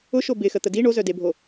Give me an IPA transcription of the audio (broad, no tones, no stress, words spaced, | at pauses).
ʊʃo bɪxə t̪ədi ɳozœdebʱo